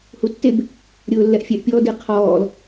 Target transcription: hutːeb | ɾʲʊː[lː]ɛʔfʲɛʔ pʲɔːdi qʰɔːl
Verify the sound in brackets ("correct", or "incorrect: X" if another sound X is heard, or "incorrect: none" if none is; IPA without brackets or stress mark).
correct